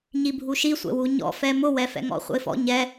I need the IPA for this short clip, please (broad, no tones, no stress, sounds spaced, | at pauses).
ɲ i bʱ u ʃ i sʷ ɛ̰ w u ɲ ɔ̰ f ɛ m ʊ w ɛ f ɛ̰ ŋ ɔ̰ χʷ ə̰ ɪ̯ f ɔ̰ ɲ ɛ